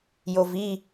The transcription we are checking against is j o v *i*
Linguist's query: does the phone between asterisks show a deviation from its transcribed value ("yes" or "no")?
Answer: no